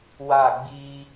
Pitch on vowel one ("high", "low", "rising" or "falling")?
falling